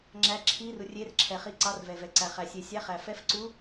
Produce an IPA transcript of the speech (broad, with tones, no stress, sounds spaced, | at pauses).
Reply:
ŋ͡ǁ æ˧˥ ǁʰ i˧˥ r u˨ rʲ e˧˥ r ǁʰ ɛ˨ χ i˧˥ ǀ ɑ˧˥ r v ɛ˨ v ɛ˨ ǀ æ˨ χ æ˨ sʲ e˨ sʲ æ˧˥ χ æ˨ f ɛ˧˥ f ǀ u˧˥